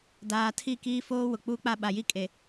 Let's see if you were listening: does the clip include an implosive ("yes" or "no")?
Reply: yes